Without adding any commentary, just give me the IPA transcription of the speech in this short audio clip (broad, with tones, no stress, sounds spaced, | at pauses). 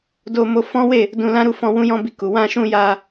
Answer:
d o˧ m o˧ f ɔ̃˦ w e˦˨ | d ũ˧ l ã˦ ɾ u˦˨ f ɔ̃˧ w ũ˦ j ɔ̃˦ b i˧ k u˨ w ã˧ ʃ ũ˧ j a˧